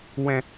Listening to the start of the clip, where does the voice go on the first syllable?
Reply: low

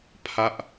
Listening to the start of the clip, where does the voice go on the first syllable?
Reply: falling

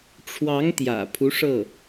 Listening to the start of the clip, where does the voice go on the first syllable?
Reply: rising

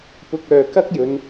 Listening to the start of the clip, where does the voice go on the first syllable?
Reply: low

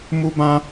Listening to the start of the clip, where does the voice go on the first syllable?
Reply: high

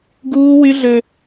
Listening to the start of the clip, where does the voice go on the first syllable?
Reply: high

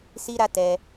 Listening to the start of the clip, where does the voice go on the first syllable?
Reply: high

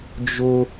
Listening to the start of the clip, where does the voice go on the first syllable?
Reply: high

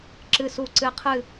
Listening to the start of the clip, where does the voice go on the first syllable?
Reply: low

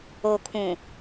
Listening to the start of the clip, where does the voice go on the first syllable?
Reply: low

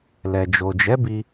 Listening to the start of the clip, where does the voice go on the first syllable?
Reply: low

